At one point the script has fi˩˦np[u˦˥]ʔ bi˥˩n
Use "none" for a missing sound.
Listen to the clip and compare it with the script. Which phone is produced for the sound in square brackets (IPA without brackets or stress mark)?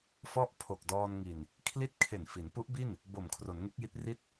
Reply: u˦˥